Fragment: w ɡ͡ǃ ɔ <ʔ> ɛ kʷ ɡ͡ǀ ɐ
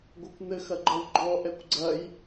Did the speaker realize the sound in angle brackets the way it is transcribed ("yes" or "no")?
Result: yes